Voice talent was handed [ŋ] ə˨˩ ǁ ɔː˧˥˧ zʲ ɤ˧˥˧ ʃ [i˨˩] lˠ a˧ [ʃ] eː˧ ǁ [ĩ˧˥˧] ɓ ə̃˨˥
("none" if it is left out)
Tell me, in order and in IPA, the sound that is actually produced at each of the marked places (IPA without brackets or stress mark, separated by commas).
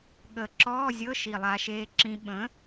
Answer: ɠ, i˨˩, ʃ, ĩ˧